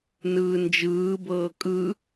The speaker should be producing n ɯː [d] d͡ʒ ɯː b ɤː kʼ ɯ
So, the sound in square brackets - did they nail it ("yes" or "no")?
no